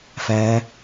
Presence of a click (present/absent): absent